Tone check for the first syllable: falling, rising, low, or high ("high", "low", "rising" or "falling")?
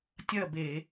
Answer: falling